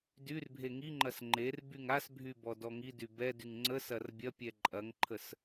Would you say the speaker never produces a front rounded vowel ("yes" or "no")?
no